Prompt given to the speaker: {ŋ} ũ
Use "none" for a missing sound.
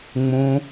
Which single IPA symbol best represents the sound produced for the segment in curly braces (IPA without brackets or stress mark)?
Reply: ŋ͡m